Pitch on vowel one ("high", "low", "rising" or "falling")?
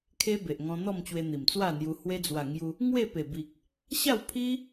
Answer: high